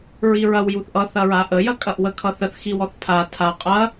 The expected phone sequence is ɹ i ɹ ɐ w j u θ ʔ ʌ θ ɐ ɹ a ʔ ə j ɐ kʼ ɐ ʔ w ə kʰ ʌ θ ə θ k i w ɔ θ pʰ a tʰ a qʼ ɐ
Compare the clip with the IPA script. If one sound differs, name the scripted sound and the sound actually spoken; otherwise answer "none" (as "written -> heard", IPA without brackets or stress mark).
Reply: k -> x